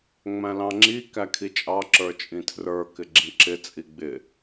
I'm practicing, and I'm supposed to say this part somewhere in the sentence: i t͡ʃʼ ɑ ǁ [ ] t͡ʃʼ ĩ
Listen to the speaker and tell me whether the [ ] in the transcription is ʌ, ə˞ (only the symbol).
ə˞